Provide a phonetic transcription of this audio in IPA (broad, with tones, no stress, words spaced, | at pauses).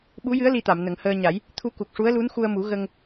ɓu˧˥jɨ˧˥ə̯ li˧t̪a˨˩˨m nə˨˩˦ŋhəː˧ɲa˨˩˦j | t̪ʰu˧ku˨˩k̚ʂu˧˥ə̯lu˧˥n xu˧ə̯mu˨˩˦ ɣə˧ŋ